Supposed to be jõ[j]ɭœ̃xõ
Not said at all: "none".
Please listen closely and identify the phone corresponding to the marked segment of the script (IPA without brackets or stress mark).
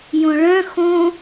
none